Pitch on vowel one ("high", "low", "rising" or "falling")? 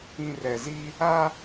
low